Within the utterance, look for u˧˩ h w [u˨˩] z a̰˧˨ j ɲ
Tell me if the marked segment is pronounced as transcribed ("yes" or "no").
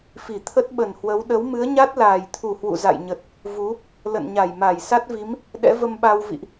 no